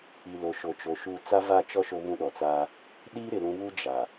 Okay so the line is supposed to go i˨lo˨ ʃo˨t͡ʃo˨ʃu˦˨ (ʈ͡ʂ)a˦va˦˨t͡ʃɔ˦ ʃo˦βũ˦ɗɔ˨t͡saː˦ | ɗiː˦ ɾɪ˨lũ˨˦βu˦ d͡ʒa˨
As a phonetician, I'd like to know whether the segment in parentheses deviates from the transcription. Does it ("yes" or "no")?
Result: yes